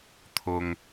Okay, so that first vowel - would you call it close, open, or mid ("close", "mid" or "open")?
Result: close